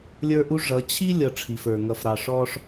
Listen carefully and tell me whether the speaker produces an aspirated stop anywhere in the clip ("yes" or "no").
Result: yes